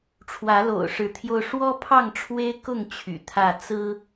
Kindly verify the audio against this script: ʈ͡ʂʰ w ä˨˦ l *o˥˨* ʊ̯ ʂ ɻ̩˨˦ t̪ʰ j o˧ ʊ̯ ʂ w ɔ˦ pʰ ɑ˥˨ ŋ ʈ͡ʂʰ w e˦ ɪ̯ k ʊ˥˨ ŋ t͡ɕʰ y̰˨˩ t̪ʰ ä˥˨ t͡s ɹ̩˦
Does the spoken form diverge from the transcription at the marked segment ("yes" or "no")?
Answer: yes